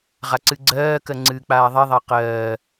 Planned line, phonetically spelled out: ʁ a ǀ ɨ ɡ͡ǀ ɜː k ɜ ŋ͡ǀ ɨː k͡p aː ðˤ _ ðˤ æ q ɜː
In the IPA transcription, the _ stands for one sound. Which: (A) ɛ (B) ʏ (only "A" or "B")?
A